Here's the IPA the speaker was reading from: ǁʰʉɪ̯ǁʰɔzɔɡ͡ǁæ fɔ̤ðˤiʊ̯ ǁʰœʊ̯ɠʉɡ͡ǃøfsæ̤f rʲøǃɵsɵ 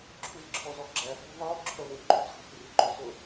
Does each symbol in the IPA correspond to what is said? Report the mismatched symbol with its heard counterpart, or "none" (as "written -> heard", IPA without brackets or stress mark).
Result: ɠ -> ŋ